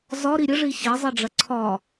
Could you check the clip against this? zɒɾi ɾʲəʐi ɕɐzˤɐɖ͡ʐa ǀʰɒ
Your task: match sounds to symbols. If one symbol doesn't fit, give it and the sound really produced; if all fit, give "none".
a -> ɐ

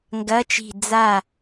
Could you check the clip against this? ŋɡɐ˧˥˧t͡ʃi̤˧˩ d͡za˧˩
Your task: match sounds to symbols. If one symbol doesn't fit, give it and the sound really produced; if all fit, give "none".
none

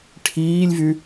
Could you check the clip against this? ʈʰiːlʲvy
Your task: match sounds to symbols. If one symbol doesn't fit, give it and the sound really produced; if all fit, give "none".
none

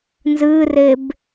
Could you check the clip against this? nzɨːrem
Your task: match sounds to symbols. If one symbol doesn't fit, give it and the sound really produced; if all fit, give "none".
m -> b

